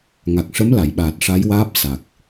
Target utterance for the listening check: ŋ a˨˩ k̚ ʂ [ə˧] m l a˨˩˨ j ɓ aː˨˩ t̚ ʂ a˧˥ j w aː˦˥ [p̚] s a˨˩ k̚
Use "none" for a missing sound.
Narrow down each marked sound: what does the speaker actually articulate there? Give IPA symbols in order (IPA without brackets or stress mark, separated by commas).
ə˧˥, p̚